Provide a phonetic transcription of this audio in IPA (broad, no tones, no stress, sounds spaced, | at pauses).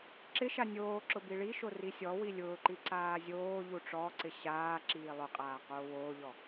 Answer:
ǁ ɪ ʃ a nʲ oː ǁ ʊ b i ɭ i ʃ o r i sʲ ɔ w i lʲ ʊː ǃ i ǀ aː zʲ oː ʎ u ʈ͡ʂ ɔ ǀ ɪ ɕ aː ǁ iː lˠ ʊ qʼ aː q oː w oː ʎ ɔ